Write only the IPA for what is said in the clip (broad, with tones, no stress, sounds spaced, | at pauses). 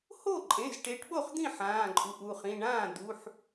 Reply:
h o˥˩ ǃʼ ẽ˩˧˩ z ʈ e˨˦ ʈ ɓ o˥˩ χ d̪ ĩ˥˩ ħ ãː˩˧˩ ǃʼ u˩˧˩ ʔ u˧˩ χ ĩ˩˧˩ ɳ ãː˥˩ d̪ u˩˧˩ ħ